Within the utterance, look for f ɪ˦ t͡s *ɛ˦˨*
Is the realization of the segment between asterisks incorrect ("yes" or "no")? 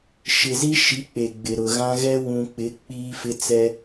yes